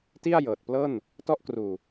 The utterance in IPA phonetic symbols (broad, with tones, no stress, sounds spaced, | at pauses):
t i˥˩ a̯ j ɤː˨˩ t̚ p l ɤː˥˩ n | t ɔ˦˥ ʔ k r uː˨˩